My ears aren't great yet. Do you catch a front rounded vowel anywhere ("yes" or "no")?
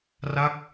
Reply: no